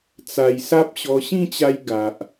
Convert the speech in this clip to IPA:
t͡s a˨˩ j s a˦ p̚ ɕ ɔ˧ ɕ ĩ˥˧ t͡ɕ a˧ j ɡ a˨ ʔ

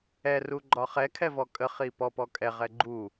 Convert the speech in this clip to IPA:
ɛ r u ɡ͡ǃ ɒ χ ɛ kʰ ɛ v ɔ kʼ ə χ i p ɔ p ɔ kʼ ɛ ʁ ɛ ɡ͡ǃ u

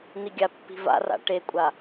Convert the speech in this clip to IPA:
n̪ i ɡʲ a pː i̤ v a̰ r a̰ ʈ e kʷʼ a

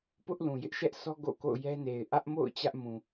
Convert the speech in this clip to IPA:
p ʊ˦ ʔ l ũ˨ j ɪ˦ ʔ ʃ ɛ˦ ʔ sʰ ɔ˦ ɡ o̰˦˨ k o̰˦˨ ʊ̯ j ɛ˦ n e˨ ɪ̯ ʔ ä˦ ʔ m o̰˦˨ ʊ̯ t͡ɕ ä˦ ʔ m ũ˨

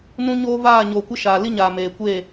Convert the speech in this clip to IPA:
n ũ˦ ɲ oː˦ v aː˦˨ ɲ oː˨ kʷ ɪ˦ ʃ aː˨ l i˦ ɲ aː˨ m eː˨ kʷ eː˦˨

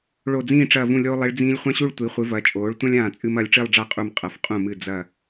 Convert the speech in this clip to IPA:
ɭ o˧˩ d͡z ĩː˥˧ ʈ͡ʂ ɐː˧˩ v ũ˧˩ lʲ oː˧ lˠ i˩˧ ɭ d͡z ĩː˧ lʲ χʷ ã˥ ɕ u˥˧ ɭ tʷ i˩˧ χʷ ɨ˩˧ v ɐː˩˧ t͡ʃʼ oː˩˧ ɭ tʷ ɐ̃˥ lʲ ãː˧˩ t͡sʼ ɨ˧ m ɐː˩˧ lʲ ʈ͡ʂ i˥˧ lˠ ɖ͡ʐ a˥˧ qʼ u˧˩ m qʼ ɐ˩˧ f qʼ ũ˧˩ m ɨ˧˩ d͡z ɐ˧˩

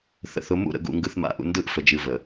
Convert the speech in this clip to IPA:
θ ə̰˨ θ ʊ˨˦ m ṵ˦˨ ɾ ə̰˨ ɡ ṵ˨ ŋ ɡ ɯ˨ θ m a̰˨˦ ʔ ṵ˨ n d ɯ˦˨ ʔ f ə˨ d͡ʒ ɨ˨ v ə˨

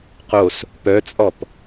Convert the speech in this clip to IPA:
q o s | p œ t͡sʼ ɔ p

